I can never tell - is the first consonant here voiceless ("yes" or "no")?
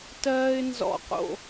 yes